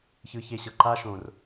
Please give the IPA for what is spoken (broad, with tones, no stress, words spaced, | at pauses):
çɯ˧çe˧ɕɤ˨ ǃa˦ʃõ˨r